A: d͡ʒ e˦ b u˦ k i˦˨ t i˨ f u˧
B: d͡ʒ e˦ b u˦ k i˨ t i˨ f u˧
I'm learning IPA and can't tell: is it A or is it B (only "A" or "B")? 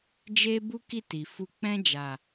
A